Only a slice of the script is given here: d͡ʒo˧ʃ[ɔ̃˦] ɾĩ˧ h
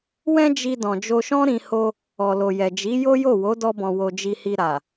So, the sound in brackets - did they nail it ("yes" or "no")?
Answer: yes